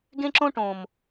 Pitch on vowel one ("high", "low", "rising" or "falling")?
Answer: high